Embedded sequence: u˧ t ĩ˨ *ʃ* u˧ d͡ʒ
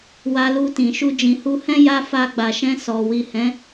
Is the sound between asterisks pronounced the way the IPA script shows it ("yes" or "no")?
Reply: yes